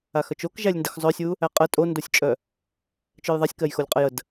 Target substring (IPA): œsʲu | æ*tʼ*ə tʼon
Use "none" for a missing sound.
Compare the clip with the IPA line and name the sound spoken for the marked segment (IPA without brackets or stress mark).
qʼ